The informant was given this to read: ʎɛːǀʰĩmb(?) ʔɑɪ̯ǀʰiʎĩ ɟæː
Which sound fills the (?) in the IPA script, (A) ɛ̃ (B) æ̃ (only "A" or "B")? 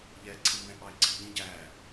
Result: A